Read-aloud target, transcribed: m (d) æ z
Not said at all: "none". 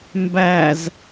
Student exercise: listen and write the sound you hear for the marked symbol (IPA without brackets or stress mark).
b